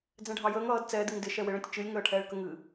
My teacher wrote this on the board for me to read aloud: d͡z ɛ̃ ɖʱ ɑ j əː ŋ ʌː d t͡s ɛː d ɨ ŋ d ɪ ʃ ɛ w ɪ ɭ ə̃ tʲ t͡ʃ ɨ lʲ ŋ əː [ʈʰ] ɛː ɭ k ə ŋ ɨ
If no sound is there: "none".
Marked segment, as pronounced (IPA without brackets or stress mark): ʈʰ